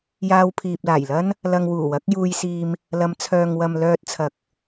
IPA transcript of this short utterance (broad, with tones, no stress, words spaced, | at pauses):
jaː˧wpʰiː˨p̚laː˨˩jlɐ˥n | lɐ˧ŋ wuː˨˩wɐ˨˥k̚juː˧jsiː˧m | lɐ˨˧mt͡sʰœː˨ŋwɐ˨m lœː˧t̚t͡sʰɐ˨k̚